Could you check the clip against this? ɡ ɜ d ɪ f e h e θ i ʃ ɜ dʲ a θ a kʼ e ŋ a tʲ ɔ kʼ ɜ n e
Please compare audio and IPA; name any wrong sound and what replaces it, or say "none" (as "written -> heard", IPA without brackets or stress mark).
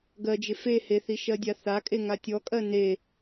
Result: d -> d͡ʒ